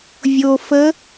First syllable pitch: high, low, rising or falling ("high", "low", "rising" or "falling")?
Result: low